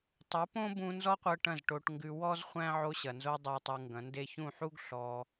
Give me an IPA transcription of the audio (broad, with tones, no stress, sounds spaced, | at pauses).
tˤ u˨˦ p õ˦ b ũ˧ n z ɔ˦ qʷ ɤ˧ ʈ ɐ̃˦˨ z ʈ o˧ ʈ ŋ ɡ ʉ˧ w ɔ˦ z χʷ æ̃˦ ʕ o˧ ɕ ɐ˨ n z o˧ dˤ æ˧ tˤ u˧ ŋ ɡ ɐ̃˨˦ n d e˦ ç ũ˦˨ ħ u˦ ɡ ɬ ɔ˧